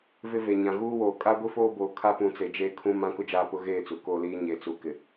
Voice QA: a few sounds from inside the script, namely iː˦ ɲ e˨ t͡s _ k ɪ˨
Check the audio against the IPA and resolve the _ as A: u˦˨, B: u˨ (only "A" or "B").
B